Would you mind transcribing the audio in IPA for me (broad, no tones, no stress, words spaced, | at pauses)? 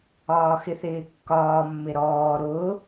ɒːxɪθɪːkːɒː mːɪɾɔː ɾʊː